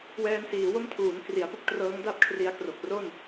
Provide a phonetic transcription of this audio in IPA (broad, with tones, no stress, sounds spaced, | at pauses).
w ɛː˧ n s iː˩˦ w o˥˩ m tʰ uː˩˦ n k r i˩˦ a̯ p u˥˩ k̚ t r ɤː˦˥ ŋ d a˥˩ p̚ kʰ r i˧ a̯ k r o˨˩ k̚ r o˥˩ n